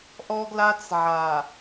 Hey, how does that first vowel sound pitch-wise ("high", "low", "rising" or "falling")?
high